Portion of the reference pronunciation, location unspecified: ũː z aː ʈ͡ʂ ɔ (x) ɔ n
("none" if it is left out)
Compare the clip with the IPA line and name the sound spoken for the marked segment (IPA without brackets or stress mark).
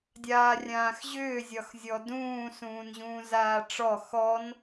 x